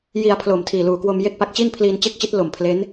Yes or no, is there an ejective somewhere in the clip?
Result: no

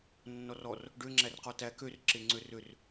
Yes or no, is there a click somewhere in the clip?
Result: yes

